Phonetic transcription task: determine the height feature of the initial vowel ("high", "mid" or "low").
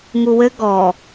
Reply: high